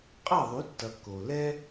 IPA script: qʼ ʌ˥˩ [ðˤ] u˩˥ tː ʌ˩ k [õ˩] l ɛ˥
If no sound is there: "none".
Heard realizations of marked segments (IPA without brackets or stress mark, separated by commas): ðˤ, o˩